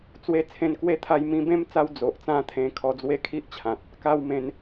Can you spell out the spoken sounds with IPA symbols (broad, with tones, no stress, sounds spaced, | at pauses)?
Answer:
t͡s w e˧ t͡sʰ ẽ˧ n k w e˦ t̪ʰ a˧ j m ĩ˧ b ẽ˦ m t͡s a˧ w d͡z o˨ ʔ t͡s ã˦ t̪ʰ ẽ˧ kʰ ɔ˧ d͡z w e˦ kʰ i˦ ʔ t͡ɕʰ ã˨ t̚ | k a˧ w m ẽ˨˦ n